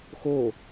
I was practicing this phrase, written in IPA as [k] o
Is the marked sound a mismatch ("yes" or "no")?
yes